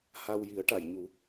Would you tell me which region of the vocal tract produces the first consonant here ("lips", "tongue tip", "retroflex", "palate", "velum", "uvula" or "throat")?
throat